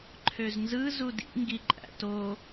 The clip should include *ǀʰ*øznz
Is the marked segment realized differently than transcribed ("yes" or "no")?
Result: yes